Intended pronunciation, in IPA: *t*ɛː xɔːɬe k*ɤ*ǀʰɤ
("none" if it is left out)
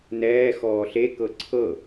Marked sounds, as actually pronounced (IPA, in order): n, ɤ

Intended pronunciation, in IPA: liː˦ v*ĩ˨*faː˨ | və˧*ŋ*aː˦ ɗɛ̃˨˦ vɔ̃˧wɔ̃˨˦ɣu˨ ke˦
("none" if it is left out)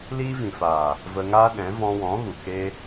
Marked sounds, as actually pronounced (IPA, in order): ĩ˨, ŋ

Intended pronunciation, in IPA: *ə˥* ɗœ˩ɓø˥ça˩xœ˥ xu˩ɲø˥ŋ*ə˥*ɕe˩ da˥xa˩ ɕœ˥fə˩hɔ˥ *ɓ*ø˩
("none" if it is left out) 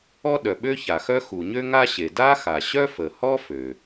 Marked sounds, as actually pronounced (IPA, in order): ɔ˥, a˥, f

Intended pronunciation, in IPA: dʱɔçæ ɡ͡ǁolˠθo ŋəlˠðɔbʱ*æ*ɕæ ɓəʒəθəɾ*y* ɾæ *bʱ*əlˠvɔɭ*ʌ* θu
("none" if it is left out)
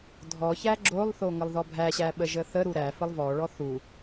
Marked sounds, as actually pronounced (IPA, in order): æ, u, f, ɔ

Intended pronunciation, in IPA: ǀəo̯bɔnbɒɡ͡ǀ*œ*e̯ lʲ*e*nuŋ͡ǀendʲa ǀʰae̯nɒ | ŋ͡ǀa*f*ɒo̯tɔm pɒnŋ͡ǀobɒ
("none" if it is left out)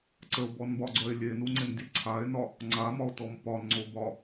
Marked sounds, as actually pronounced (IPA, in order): œ, e, m

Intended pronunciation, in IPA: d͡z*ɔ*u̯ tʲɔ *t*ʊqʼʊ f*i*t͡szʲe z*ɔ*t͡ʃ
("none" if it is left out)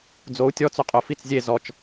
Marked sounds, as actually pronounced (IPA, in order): o, t͡s, i, ɔ

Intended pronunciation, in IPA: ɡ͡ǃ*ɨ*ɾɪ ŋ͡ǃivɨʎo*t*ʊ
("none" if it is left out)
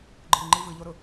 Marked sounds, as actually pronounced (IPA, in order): ɨ, ɾ

